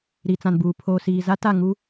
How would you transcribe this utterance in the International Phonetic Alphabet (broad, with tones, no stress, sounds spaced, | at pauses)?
ɾ i˨ t͡s ã˨ n b uː˨ pʰ oː˨ s iː˨ z a˦ t a˦˨ ŋ u˦